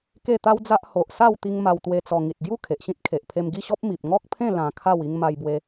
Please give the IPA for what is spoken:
ke˥˧t̪a˦wd͡za˦ʔ ho˨ʔ sa˥˧wt̪i˧ŋ ma˧wt̪we˧t͡sɔ˧ ŋi˨t̚ɡju˥˧ kʰe˨ʔɕĩ˦t̚kʰe˨ʔpʰe˧m ɡi˥˧ɕɔ˦p̚ mi˨p̚ŋɔ˦k̚pʰẽ˥˧ lã˧kʰa˥˧w i˧ŋma˧jbwe˧

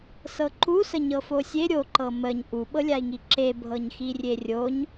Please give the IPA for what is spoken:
sɤǃusə ɲɤfosʲe ɾʲoǃɤ məɲ ʔuɓɤlʲai̯ŋi ǁebʱɤɲxirʲe rʲoɲ

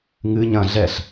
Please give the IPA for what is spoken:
ŋɨ ɲɐ̃ ɮɛɬ

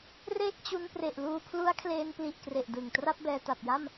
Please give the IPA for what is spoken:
reː˥˩k̚ t͡ɕu˧npre˨˩ʔluː˧ pʰlu˦˥a̯kʰleː˧npli˨˩ʔkre˨˩ʔ dɯ˨˩ŋ tra˥˩p̚bɛː˧ta˨˩p̚ja˥˩m

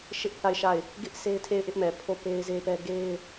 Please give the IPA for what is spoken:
ʃɪ˦ʔθa˦˨ɪ̯ʃa˦˨ɪ̯ | ɡɪ˦ʔ se˦ɪ̯tʰe˦˨ɪ̯ʔɪ˦ʔmɛ˨ pʰo˦˨pe˦ɪ̯ze˦pɛ˦ ɡe˦ɪ̯

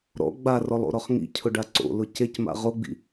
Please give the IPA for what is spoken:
ɾɔ̰ ɡ͡barɔlˠo̰ɾɔχ ŋḭcʰʊɖa ǀo̰lʊ cecma̰ ʁoɡ͡bḭ

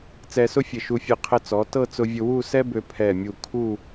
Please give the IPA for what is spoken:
t͡sɛ˧sʊ˥fʲɘ˧˩ ʃu˧fʲɘ˧ qʰɘ˧t͡sɔ˩˧ tɤ˥˧t͡sʊ˧vʲʊ˧wu˥˧ sɛ˥bø˧ pʰɛ˧˩mʲu˧˩ kʰu˥˧

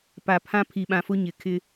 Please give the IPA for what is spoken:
pa˨pʰã˦ pʰi˨ɓã˨fʊ˦ ɲɪ˨ kʰɪ˦

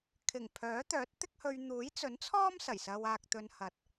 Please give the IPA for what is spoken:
kʰɪ˨˩ŋpʰœː˨˥ t̪œː˨˥t̚t̪ɪ˥k̚hɵ˧ɥ n̪uː˨˥jt͡sɵ˨˥nt͡sʰɔː˥m sɐ˨˩jsɐ˧waː˧k̚t̪ɵ˧n hɐ˨t̚

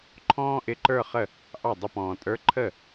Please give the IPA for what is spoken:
ǃʰɔ̃ː˥ʔɪ˧˥ǃə˞˥˧χə˥˩ | ʔɑ˥˩dˤə˥˧pɔ̃ː˨ tʼə˞˧˥ǃʰə˥˩

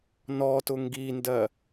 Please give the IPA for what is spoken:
nɔtʊ ŋɡindɜ

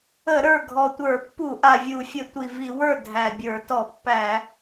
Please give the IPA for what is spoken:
ə˧˩˧ ɾə˞˥˩ ɡʱɔ˨˩tʷə˞˧˩˧pːu˧˩˧ ʔa˨˩vʲu˧˩˧fʲə˧˩˧ tʷi˨˩vi˧˩˧wə˞˥˩ dʱæ˨˩bʲə˞˧˩˧ tɔ˧˩˧pːæ˧˩˧

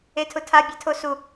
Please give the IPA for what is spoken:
etʰʊtʰa bʲɛtʰosu

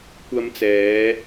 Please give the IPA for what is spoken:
kʷɐ˧mt͡sɛː˨˧

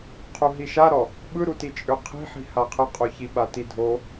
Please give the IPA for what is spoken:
qʰuɦiʃaɾɔ | ɓɯɾuti t͡ʃʼøqʰi̤ħi̤ haqʰəqʼo çiɓatidʱo

